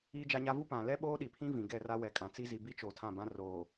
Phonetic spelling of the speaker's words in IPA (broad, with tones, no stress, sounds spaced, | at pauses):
iː˦ d͡ʒ a˦ ɲ a˦ v u˦ p ã˨ l ɛ˦ ɓ oː˦ ɗ i˨ pʰ ĩ˦ v ĩ˨ ɡ ɛ˦˨ r a˦ w ɛ˨ kʼ ã˨ t͡s i˦ z i˨ b i˦ t͡ʃ oː˨ tʰ ã˦˨ b ã˦ r oː˨